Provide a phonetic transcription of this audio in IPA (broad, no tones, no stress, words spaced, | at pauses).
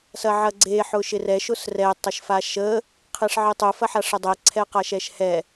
sɐʕɐɡ͡ǀe ħʊʃɪrɛʃ ʊsrɛ tˤɐʃfaʃə | qʰeʂʕɪtˤʊ fɐħaʂədˤɛ ǀʰɛqaʃɛʃhɛ